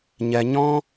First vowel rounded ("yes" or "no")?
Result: no